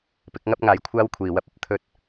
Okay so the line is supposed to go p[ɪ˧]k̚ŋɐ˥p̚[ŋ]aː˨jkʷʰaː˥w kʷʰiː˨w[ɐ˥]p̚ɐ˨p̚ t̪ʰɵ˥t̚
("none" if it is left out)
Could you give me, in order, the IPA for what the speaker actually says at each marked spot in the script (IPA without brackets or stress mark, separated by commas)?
ɪ˨˥, ŋ, ɐ˥